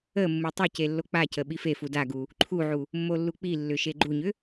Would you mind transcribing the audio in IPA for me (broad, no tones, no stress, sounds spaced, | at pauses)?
ə mː u tˤ ʏ c e lː o k͡p a c ə ɓ i f e f u d a ɡ u | ǃʰ u ʕ u | mː o lː u k͡p i lː ʏ ʃ e ɡ͡ǃ u ɲ ʏ